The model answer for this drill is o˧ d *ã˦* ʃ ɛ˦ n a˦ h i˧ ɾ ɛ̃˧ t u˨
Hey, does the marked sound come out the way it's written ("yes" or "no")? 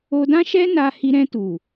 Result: yes